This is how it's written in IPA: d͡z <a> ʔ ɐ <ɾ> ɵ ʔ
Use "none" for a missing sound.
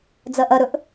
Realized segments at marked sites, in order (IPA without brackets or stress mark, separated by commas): ɐ, ɾ